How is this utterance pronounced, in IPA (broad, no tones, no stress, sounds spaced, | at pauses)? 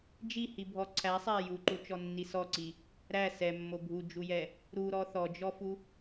d͡ʒ i h i bʱ ɔ ǀʰ æ sˤ æ j u ǃ u t͡ʃ ɔ nː i s ɔ ǀ i | ɾ æ s ɛ mː o bʱ u d͡ʒ u j ɛ | ɾ u ɾ ɔ θ ɔ d͡ʒ ɔ f u